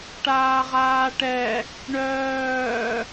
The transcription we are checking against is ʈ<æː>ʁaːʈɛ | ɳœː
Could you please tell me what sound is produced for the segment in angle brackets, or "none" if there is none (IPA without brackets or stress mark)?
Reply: aː